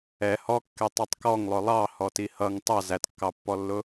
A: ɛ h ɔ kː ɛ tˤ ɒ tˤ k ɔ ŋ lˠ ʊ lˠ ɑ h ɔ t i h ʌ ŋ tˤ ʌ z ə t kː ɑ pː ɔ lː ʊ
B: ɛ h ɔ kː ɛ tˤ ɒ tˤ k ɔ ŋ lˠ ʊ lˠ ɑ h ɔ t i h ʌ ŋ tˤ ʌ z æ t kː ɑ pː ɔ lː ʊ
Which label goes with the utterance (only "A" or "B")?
B